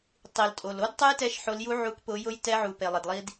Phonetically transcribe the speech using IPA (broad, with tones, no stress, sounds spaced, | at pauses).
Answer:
tˤ i˩ l tʼ o˩ l o˦˥ d tˤ ʊ˦˥ j t ɛ˨˦ ʃ ħ o˨˦ l j u˦˥ ʕ u˨˦ k p ʊ˨˦ j ʊ˦˥ j t ɛ˦˥ ʕ u˩ p e˩ lˠ ɪ˩ d lˠ i˦˥ d